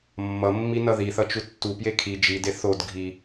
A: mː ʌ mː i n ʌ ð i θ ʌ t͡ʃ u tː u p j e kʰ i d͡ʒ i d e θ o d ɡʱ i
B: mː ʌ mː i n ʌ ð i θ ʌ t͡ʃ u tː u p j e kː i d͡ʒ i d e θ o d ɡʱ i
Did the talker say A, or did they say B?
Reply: A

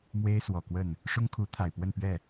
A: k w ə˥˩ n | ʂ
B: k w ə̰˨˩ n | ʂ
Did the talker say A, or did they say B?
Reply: A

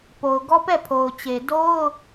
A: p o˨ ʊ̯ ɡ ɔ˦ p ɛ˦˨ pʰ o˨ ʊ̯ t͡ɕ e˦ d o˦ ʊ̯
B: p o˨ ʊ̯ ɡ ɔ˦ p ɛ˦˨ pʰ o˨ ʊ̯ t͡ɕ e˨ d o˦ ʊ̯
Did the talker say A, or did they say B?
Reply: B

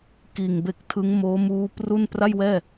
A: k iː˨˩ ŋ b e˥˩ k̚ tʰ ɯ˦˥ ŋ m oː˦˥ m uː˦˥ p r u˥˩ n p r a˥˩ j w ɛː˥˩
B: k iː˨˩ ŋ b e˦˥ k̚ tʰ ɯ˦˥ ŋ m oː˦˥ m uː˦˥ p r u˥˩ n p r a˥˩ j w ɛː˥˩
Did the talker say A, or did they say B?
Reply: B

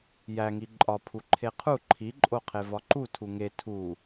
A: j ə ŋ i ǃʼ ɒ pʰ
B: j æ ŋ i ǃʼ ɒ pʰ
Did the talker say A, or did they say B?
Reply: B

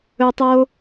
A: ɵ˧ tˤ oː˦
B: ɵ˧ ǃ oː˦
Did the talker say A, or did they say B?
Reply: A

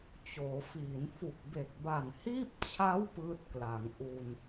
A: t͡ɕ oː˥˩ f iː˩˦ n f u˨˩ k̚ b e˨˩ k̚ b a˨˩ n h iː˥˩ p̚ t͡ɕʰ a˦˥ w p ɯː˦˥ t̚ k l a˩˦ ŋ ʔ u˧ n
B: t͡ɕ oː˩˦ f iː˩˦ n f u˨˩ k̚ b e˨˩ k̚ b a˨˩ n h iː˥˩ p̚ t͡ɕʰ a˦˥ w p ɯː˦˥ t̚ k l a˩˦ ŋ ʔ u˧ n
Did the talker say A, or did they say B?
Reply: B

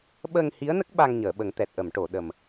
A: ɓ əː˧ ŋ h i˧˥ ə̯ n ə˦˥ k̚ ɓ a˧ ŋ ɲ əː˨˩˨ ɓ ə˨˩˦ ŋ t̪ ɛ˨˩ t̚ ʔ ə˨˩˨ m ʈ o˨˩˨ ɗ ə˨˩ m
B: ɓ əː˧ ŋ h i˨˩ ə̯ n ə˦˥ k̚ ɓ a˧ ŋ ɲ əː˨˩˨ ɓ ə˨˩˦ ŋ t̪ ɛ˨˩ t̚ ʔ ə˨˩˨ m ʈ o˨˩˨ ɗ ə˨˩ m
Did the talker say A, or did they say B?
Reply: A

